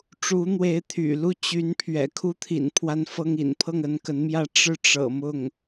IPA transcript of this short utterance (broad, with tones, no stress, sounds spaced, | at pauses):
ʈ͡ʂ u˧˥ n̪ w e˧˥ ɪ̯ t̪ʰ y̰˨˩ l u˥˩ t͡ɕ y˧˥ n pʰ ɥ ɛ̰˨˩ kʰ u˥ t̪ʰ ḭ˨˩ n pʰ w a˥ n f ɤ˥ ŋ ḭ˨˩ n pʰ ɤ˥˩ ŋ ə˧˥ n k ə˧˥ n m j ä˥˧ ʈ͡ʂ ɻ̩˥˩ ʈ͡ʂ ɤ̰˨˩ m ʊ˥˩ ŋ